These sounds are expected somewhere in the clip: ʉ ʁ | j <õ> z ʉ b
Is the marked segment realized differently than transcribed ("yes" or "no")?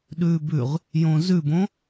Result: no